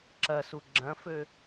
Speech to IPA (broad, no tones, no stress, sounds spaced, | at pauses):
ǁ ɐ s u ɡ͡ǁ ɐ̃ f ø